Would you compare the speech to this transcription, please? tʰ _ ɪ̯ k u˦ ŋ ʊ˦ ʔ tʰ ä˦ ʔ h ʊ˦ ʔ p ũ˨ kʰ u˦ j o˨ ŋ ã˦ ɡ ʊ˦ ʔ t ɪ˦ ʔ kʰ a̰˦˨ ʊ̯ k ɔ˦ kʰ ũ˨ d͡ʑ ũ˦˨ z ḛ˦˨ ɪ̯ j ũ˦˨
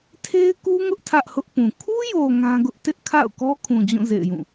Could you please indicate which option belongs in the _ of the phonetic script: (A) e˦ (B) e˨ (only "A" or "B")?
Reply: A